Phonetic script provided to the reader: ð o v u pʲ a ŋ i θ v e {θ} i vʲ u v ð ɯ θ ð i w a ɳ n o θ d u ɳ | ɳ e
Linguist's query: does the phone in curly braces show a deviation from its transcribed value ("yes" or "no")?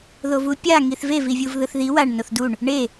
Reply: yes